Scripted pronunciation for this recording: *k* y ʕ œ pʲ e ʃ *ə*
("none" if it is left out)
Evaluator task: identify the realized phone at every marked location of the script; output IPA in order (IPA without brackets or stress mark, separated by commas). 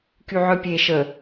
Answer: k, ə